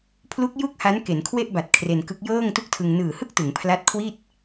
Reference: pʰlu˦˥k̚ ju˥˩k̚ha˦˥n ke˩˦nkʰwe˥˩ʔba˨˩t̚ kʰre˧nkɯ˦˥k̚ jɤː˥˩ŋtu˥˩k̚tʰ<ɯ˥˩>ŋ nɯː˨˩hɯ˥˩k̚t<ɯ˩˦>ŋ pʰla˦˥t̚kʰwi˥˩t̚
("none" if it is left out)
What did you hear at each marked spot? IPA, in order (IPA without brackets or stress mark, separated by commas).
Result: ɯ˧, ɯ˩˦